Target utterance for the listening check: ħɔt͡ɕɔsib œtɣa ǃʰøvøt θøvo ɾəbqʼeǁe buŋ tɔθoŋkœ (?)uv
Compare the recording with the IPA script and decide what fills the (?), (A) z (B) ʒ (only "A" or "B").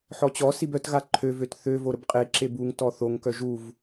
B